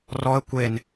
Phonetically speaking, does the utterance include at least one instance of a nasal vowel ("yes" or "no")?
no